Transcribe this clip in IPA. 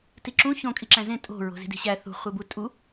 t i ǁ ũ ç õ kʼ i ǁ æ̃ z ẽ tʼ o̤ ɹ o̤ z i̤ d i̤ ɕ æ θ ṳ χʷ e b u tʼ u

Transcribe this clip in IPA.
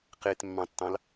q e t mː ɑ̃ tː ɑ̃ l

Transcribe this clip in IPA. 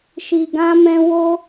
ʃ i˧ ɡ ã˦ m ɛ̃˦ w o˦

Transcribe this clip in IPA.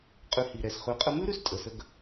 qʼ ʉ˧ h i˨ ɾ ɛ˨ s χ ʉ˨˦ qʼ ə˧ m ʉ˦ ɾ ʉ˦ s tʼ ə˨ s ə˧ ɡ

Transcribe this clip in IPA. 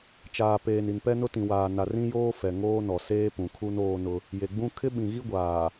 t͡ʃ aː˨ p eː˨ n i˨ n p ɛ˦ n ʊ˦ t ĩ˨ w aː˨ n a˨ r ĩ˦ j oː˦ f ɛ˨ ŋ oː˦ n ɔ˨ s eː˦ p ũ˨ kʰ u˦ n oː˦ n ʊ˦ | j e˨ ɡ͡b ũ˦ kʰ ɪ˦ ɓ ĩ˨ ɣ i˦ ɡʷ aː˨

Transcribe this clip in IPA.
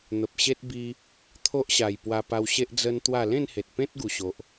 n̪ ə˨ p̚ ɕ e˦ t̚ b i˧ | t̪ʰ o˦ ʔ ɕ a˨˩ j p w a˧ p a˧ w ɕ e˦ ʔ d͡z ə˦ n t̪ w a˥˧ l ẽ˥˧ n h e˨ t̚ p ẽ˦ t̚ ɡ u˨˩ ɕ o˨ ʔ

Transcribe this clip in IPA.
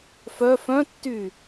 f œ f œ̃ tː y

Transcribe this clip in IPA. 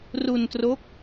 r u˧ n t r o˦˥ k̚

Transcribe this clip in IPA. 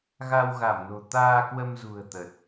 ɣ a˧ w ɣ a˧˩ m n o̤˨˩ t̪ aː˧ k w ə˧ m z ṳ˨˩ ə̯ t̪ ə˨˩ t̚

